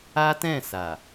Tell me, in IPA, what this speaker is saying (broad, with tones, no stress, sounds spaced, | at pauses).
a˦ t ɛ̃˦˨ s a˨